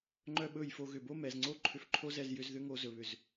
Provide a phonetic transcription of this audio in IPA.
ŋ͡ǃ œ˦ ɓ ɵ˦˨ j f o˧ ɣ ʏ˨ b o˦ m ɛ˨ z ŋ͡ǀ o˦ ǃʰ ʏ˧ f ǃʰ o˦ z ɛ˦˨ z j ʏ˧ z ð ʏ˦ ŋ o˧ z ɵ˨ β ʏ˨ z

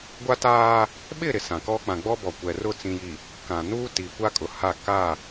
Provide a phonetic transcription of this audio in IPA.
ɡʷ a˦ t aː˦ | ɓ ɪ˦˨ ɾ ɪ˨ s ã˨ k ɔ˦ k͡p ã˨ ɡ͡b ɔ˦ b ɔ˨ kʷ ɛ˨ r ʊ˦˨ t͡s ĩ˨ j i˨ | k ã˨ n uː˦ t i˨ kʷ a˦ kʼ ʊ˨ h a˦˨ k a˦˨

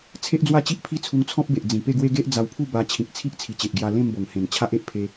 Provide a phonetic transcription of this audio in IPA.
t͡sʰ e˦ ʔ d͡z w a˥˧ t͡ɕ i˦ ʔ pʰ i˥˧ t͡sʰ u˧ ŋ t͡sʰ ɔ̃˦ p̚ b e˨ ʔ d͡z ĩ˨˩ p e˥˧ ɡ w e˦ ɡ e˦ ʔ d͡z a˧ w pʰ u˥˧ b a˧ t͡ɕʰ ĩ˨ k̚ t͡sʰ i˦ ʔ t͡sʰ i˨˩ t͡ɕ e˨ ʔ ɡ j a˧ l ẽ˥˧ m b o˨˩ ŋ h ẽ˨˩ n t͡ɕʰ a˦ ʔ e˨ ʔ pʰ e˧

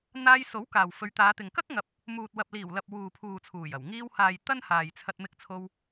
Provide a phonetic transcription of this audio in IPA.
n̪ aː˧ j s o˨˥ w k aː˨ w f ɵ˨˧ ɥ t̪ aː˨˧ t̪ ɪ˨ ŋ k ɐ˥ k̚ ŋ ɐ˨ p̚ | m uː˨ t̚ w ɐ˨ p̚ l iː˨˩ w l ɐ˨ p̚ w uː˨ pʰ uː˨ t͡sʰ uː˨˩ j ɐ˨˩ w ŋ iː˧ w h aː˨ j t̪ ɐ˥ n h aː˨ j t͡sʰ ɐ˧ t̚ m ɪ˧ k̚ t͡sʰ o˧ w

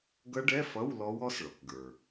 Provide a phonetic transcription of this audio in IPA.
ɡ ʌ˦˥ ɖ ɛ˧˥˧ f ʌ˧˥˧ w l ɔ˦˥ w ɔ˦˥ s ɭ ɔ˩ k ɡ ə˞˩

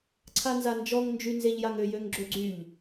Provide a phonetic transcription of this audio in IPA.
ǀʰ a n z a n d͡ʒ ɔ ŋ n d͡ʒ y n z e ʎ j a ŋ ø j ø ŋ ɡ͡ǁ ø ɡ͡ǀ y ʎ

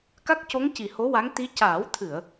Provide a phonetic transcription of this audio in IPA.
k a˦˥ k̚ c o˧˥ ŋ c i˨˩ h o˧˥ w a˧˥ ŋ t̪ i˧˥ c aː˨˩˦ w t̪ʰ ɨ˨˩˨ ə̯

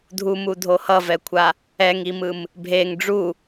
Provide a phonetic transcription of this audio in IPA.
dʱ u m u dʱ o h ʌ v ɛ kʷʰ a | ɛ ŋ i m ɯ m | bʱ e ŋ ɖ͡ʐ u

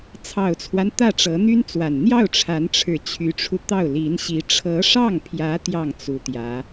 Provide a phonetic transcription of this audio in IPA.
t͡sʰ ɑ˨˩ ʊ̯ t͡sʰ w a˦ n t̪ ä˥˩ ʈ͡ʂ ɤ˧˥ n̪ y˥ n t͡s w a˨˩ n n̪ j ɑ˥˩ ʊ̯ ʈ͡ʂʰ a˧˥ n ʈ͡ʂʰ ɻ̩˨˩ t͡ɕʰ y˧˥ ʈ͡ʂʰ u˧ t̪ ɑ˥˩ ʊ̯ l i˧˥ n ɕ i˧˥ ʈ͡ʂʰ ɤ˧˥ ʂ ɑ˥˩ ŋ pʰ j ä˧˥ t̪ j ɑ˥˩ ŋ t͡s u˧˥ t̪ j ä˧˥

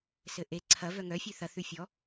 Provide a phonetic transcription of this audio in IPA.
s ɘ ʔ e ǀʰ ɐ v œ ŋ œ fʲ ʉ θ ɐ θ ʉ fʲ ɔ

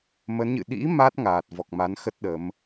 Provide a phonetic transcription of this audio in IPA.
m ə˨˦ n ɲ ɨ̰˧˨ ɗ ḭ˧˥ m a˦˥ t̚ ŋ aː˨˩ t̚ v ɔ˨˩ k̚ m a˨˦ n x ə˦˥ t̚ ɗ ə˨˦ m

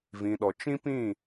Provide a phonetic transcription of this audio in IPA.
v ĩ˨ ɗ ɔ˨ t͡ʃ ĩ˦ p ĩ˦˨

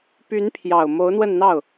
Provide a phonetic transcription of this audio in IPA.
p y˧˥ n pʰ j ɑ˨˩ ʊ̯ m o˧˥ ʊ̯ n̪ w ə˥˧ n n̪ ɑ˥˩ ʊ̯

